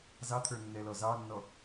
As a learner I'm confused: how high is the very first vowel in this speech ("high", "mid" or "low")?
low